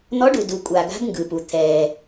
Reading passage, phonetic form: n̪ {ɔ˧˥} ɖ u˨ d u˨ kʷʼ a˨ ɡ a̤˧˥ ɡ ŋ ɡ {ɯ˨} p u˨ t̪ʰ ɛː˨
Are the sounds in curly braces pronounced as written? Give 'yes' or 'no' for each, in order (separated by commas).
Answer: yes, yes